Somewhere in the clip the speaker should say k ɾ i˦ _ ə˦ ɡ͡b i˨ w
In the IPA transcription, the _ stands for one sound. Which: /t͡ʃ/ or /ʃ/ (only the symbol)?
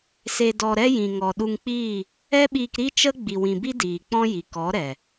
t͡ʃ